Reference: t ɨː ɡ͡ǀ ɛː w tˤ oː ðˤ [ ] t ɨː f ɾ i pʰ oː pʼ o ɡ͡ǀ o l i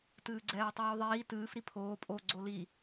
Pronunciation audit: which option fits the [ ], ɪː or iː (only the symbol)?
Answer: iː